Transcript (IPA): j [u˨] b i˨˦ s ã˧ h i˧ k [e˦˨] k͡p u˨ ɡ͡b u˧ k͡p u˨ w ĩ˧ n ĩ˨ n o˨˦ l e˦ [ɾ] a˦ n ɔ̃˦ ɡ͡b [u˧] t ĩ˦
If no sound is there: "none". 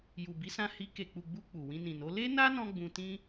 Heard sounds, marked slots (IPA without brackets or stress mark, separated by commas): u˨, e˨, n, ũ˧